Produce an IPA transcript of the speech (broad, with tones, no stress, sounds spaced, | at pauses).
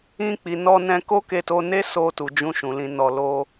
ĩ˧ k͡p i˨ n ɔ˧ n ɛ̃˧ k o˦ k e˧ t o˧ n e˦ s o˧ t u˨ d͡ʒ ũ˧ ʃ ũ˨ l ĩ˨ n ɔ˨ l o˧